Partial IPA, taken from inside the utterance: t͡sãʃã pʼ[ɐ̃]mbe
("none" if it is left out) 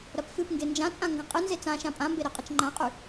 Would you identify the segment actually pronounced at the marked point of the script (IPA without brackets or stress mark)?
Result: ã